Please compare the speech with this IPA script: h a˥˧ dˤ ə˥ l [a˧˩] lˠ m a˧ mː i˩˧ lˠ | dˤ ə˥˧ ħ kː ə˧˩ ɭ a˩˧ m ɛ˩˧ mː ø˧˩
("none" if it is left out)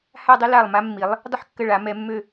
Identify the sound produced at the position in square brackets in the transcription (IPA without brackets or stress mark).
a˧˩